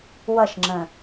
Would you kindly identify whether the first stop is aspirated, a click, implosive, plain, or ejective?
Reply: click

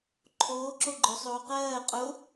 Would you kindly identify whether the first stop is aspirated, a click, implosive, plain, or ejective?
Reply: click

